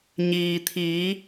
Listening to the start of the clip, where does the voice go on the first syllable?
low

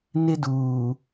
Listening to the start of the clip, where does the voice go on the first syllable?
high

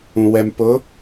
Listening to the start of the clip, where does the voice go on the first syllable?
low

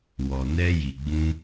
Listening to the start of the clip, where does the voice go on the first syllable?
low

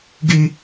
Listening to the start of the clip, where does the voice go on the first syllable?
high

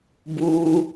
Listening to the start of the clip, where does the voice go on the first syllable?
high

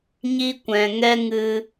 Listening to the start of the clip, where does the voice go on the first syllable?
high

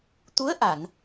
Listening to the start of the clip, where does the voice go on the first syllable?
rising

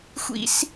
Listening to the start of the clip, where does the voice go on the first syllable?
high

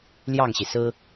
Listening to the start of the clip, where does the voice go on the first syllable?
falling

